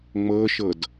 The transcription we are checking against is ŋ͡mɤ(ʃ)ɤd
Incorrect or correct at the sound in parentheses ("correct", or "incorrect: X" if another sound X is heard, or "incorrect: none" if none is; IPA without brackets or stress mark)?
correct